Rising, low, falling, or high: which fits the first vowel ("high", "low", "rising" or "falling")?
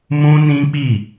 high